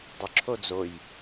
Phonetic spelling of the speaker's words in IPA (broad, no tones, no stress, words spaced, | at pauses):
dˤʏǁʰo d͡zoj